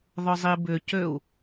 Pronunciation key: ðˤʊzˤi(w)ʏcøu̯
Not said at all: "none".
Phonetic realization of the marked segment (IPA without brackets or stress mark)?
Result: b